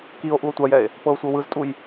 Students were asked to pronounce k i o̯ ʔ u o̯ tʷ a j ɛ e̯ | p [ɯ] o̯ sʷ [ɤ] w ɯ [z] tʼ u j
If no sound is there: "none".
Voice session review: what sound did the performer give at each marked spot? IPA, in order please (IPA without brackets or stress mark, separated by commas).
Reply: ɤ, ɤ, z